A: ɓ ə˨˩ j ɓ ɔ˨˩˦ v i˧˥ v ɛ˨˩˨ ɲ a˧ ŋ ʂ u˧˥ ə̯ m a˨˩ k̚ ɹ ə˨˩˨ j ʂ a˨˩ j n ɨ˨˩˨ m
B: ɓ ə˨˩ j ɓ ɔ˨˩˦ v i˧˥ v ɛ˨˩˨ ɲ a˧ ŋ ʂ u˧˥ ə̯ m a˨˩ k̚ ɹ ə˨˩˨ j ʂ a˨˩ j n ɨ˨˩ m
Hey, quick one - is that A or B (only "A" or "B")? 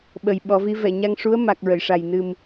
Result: B